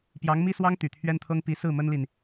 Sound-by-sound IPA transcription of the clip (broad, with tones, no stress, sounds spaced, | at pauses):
p j ɑ˧˥ ŋ m i˥ s w ɑ˥ ŋ t̪ y˨˩ t̪ʰ ɥ ɛ˥ n t̪ʰ ɤ˥ ŋ p i˧˥ s ɹ̩˥˩ m ə˥ n l i˨ n